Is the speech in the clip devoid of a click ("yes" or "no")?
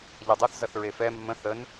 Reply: yes